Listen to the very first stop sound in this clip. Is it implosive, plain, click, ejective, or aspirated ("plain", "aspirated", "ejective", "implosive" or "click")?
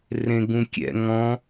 plain